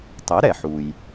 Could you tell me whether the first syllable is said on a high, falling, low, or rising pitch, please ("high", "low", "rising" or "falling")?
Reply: rising